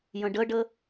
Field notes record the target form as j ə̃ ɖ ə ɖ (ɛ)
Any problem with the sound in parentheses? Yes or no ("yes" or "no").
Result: yes